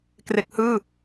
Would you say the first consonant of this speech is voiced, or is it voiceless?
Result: voiceless